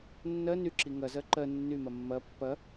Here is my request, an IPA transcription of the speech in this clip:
nː ɜ n y ǁ i ŋ ɐ z ɜ ǃ ɜ nː y m ɐ mː ɐ pː ɐ

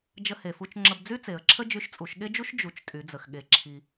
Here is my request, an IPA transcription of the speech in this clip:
d͡ʒ ə˧ h e˩ f u˧ t͡ʃ ŋ͡ǁ ə˧ b d͡z y˥ t͡s e˩˧ ə̯ ǁʰ ə˥ d͡ʒ y˧ ʃ t͡sʼ u˩˧ ʃ ɠ e˥ d͡ʒ u˥ ʃ d͡ʒ u˩˧ t͡ʃ tʼ y˩˧ d͡z ə˩ x ɠ e˩˧ ǁʰ i˩

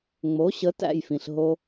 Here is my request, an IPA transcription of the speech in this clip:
ŋ͡m o˩˥ ɕ ə˩˥ t æ̰˥˩ j f ĩ˩ ɬ ɦ o˧

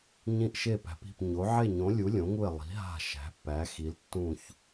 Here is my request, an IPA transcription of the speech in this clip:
ɲ ĩ˧˩ ʔ ʃ e˧˩ p æ̤˩˧ p i̤˧˩ p ɲ o˩˧ ʕ e˧˩ ɲ õ˩˧ lʲ u˩˧ lʲ õ˩˧ ŋ u˧˩ e̯ lˠ i̤˩˧ ɦ a̤˧˩ ʃ æ̤˩˧ pː æ˩˧ x i˩˧ l tː ũ˧˩ ç

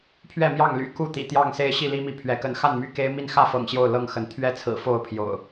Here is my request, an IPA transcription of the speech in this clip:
pʰ ɥ ɛ˥˨ m j ɑ˥˨ ŋ l y̰˨˩ k u˥˨ t̪ ḭ˨˩ t̪ j ɑ˥˨ ŋ s e˦ ɪ̯ ɕ i˥˨ l i˦ m i˨˦ pʰ ɥ ɛ˨˦ k ə˨˦ n x a˥˨ n m y˥˨ k e˦ ɪ̯ m i˥˨ n x ä˥˨ f ɤ̰˨˩ ŋ ɕ j o˥˨ ʊ̯ l ɤ˥˨ ŋ x ə˨˦ n t̪ʰ ɥ ɛ˥˨ t͡sʰ ɹ̩˨˩ f o˥˨ ʊ̯ pʰ j o̰˨˩ ʊ̯

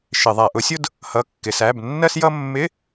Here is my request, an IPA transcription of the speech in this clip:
ʃ ɪ˧˩˧ ðˤ æ˧˩˧ ʔ ʊ˨˥ sʲ ʊ˥ d | h ʌ˧˥˧ kː ɪ˧˩˧ s æ˧˥˧ b nː ɜ˥ s j ʌ˥ mː ɪ˧˥˧

